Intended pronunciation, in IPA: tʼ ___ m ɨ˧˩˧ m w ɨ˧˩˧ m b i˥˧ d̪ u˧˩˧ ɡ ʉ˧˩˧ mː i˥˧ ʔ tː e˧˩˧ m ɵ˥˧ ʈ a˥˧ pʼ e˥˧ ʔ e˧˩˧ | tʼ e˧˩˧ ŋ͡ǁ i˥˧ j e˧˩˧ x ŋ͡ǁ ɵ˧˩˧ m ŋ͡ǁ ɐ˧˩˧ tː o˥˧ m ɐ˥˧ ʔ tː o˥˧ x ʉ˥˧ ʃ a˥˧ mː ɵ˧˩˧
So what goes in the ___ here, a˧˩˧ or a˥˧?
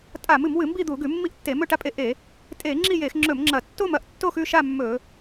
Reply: a˧˩˧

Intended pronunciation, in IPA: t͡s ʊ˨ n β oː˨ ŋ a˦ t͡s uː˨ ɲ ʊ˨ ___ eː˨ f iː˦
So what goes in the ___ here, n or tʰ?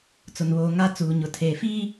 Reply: tʰ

